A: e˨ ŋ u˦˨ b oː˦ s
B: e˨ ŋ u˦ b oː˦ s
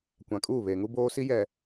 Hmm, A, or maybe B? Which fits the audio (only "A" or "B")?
B